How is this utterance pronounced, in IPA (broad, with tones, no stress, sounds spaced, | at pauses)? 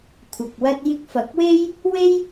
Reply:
kʷʰ ɐ˨ k̚ w ɐ˥ t̚ j ɪ˧ k̚ f ɐ˨˥ k̚ w e˥ j | w e˥ j